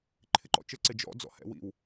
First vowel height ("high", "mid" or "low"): high